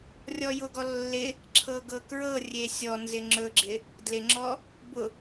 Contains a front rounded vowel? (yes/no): no